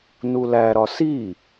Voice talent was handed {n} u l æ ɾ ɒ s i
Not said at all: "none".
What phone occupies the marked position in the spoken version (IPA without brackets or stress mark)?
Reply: n